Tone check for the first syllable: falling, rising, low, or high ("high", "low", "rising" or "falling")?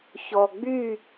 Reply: low